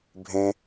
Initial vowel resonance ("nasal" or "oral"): nasal